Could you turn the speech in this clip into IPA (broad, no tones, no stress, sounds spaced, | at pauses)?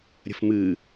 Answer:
ɾʲ ə̤ f m ɨ